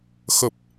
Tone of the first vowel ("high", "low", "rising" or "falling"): low